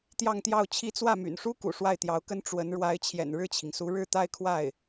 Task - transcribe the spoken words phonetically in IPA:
t̪ j ɑ˥˧ ŋ t̪ j ɑ˥˩ ʊ̯ t͡ɕʰ i˥ t͡s w ä˥˩ m y̰˨˩ n ʂ u˥ k ṵ˨˩ ʂ w a˥˩ ɪ̯ t̪ j ɑ˧˥ ʊ̯ k ə˥ n ʈ͡ʂ w ə˧˥ n ɻ w a˧˥ ɪ̯ t͡ɕʰ j ɛ̰˨˩ n ɻ ɻ̩˥˩ t͡ɕʰ i˩ ŋ s u˧˥ ɻ ɻ̩˥˧ t̪ a˥˧ ɪ̯ kʰ w a˥˩ ɪ̯

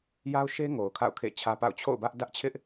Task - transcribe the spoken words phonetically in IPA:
j a˦ ʊ̯ ʃ e˦ ŋ o˨ ʊ̯ kʰ a̰˦˨ ʊ̯ kʰ ḛ˦˨ t͡ɕʰ ä˦ p a̰˦˨ ʊ̯ t͡ɕʰ o̰˦˨ ʊ̯ b ä˦ ʔ d ä˦ ʔ t͡ɕʰ ɪ˦ ʔ

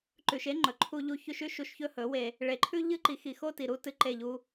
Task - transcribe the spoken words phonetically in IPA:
ǃ ʉ˨ ʃ e˦ ŋ͡ǃ ɵ˨ ǃʰ u˧ ʎ u˧ ç ʉ˧ ʃ ʉ˦ ʃ u˧ ʃ ç ɵ˦ h ɵ˨˦ w e˧ | ɭ e˨ ǃʰ ʉ˦ ʎ ɨ˦ ǃ i˨˦ x i˨ x o˦ t i˨ ɾ u˦ t ɨ˧ ǃ e˦˨ ʎ u˦

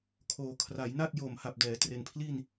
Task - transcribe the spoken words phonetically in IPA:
kʰ oː˩˦ kʰ r a˩˦ j n a˥˩ t̚ j o˨˩ m h a˨˩ p̚ d ɛː˩˦ t r e˨˩ n pʰ l i˥˩ n

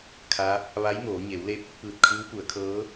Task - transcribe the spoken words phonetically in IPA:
kʰ a˧˥ | ʋ a˧˥ j ŋ oː˩˧ ɲ e˩˧ w l e˧ p̚ | p ɯː˧˩ t̚ kʰ ɯː˧˥ w p u˩˧ ə̯ kʰ ɤː˧˥

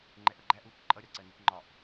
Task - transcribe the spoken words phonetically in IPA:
ŋ͡ǃ ɛ ʔ ʌ ɡ͡ǃ æ ʔ uː k ǃʼ ʌ ɾʲ ɒ ǀ ɜ n i k ŋ͡ǃ ɒ ʔ

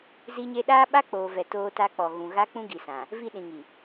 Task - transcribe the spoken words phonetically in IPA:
z i˦ ɲ e˦ ɗ aː˦ ɓ a˦ k͡p oː˨ v ɛ˨ t oː˦ t a˦ k͡p ɔ˨ ɣ ũ˨ ɣ a˦ k͡p ũ˦ ɡ i˨ s ã˨ | v i˦˨ ɗ ĩ˨ ŋ i˨

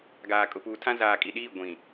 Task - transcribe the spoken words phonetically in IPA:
ɡ aː˨ kʼ ʊ˨ p uː˨ tʰ ã˦ z aː˨ kʼ i˨ ɗ iː˦˨ ɡʷ ĩ˨

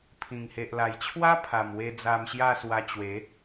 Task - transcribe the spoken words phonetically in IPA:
pʰ ĩ˨˩ ŋ h e˨ ʔ l a˨˩ j t͡ɕʰ w a˦ pʰ a˨˩ m w e˧ d͡z a˧ m ɕ j a˥˧ s w a˧ t͡ɕ w e˨˦

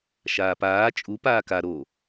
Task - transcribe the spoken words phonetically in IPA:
ʃ aː p aː t͡ʃʼ u p aː k a ɾ o

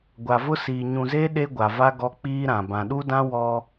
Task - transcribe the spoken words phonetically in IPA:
ɡʷ a˨ v ʊ˦ s iː˨ ɲ ũ˨ z e˦ ɗ e˦ ɡʷ a˨ v a˦ ɡ ɔ˦ k͡p iː˦ ɾ ã˨ b ã˨ ɗ u˦ d ã˦ w ɔ˦

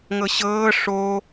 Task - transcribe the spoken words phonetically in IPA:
ŋ ɤ ɕ ɤː ʂ o

